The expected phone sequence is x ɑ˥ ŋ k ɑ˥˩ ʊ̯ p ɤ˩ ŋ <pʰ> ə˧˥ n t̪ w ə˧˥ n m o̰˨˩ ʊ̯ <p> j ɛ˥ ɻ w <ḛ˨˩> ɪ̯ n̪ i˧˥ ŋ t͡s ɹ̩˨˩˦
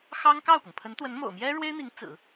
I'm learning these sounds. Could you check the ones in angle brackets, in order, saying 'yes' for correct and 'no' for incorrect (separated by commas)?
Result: yes, no, no